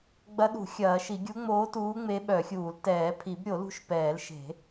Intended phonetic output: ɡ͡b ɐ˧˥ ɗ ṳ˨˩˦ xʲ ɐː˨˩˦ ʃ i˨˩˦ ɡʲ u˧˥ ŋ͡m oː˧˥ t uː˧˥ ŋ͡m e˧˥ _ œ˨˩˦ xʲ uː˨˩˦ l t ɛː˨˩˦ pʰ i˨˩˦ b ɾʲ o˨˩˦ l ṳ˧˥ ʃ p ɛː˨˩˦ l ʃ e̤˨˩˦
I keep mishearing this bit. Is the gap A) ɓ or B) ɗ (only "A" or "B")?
A